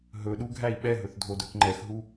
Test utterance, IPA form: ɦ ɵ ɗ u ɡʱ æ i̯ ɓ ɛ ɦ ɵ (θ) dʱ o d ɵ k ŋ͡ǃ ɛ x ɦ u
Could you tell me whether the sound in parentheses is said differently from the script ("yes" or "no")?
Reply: no